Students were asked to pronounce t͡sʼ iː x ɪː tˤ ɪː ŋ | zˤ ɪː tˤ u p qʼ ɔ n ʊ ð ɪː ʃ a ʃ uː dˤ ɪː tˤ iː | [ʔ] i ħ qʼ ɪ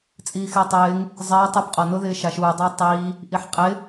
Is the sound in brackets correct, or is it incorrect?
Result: correct